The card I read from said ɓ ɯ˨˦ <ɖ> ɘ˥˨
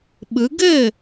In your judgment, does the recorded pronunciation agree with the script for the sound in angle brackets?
no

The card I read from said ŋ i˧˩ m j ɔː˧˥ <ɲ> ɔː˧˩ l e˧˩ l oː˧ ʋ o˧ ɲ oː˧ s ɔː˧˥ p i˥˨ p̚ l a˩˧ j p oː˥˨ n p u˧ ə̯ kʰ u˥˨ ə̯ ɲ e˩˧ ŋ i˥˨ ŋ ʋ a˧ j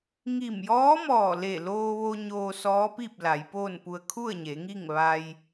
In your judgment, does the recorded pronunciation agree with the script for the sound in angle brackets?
no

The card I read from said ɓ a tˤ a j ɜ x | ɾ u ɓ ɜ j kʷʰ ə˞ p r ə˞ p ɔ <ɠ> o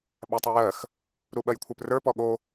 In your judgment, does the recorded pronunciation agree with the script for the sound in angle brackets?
yes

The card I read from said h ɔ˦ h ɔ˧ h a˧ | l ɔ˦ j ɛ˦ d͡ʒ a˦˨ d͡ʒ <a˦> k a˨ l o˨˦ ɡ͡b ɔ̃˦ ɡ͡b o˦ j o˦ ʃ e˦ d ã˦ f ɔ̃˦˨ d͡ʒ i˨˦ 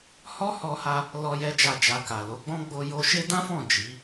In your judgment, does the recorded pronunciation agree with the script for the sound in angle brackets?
no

